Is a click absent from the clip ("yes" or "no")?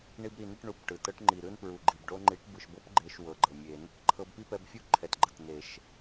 no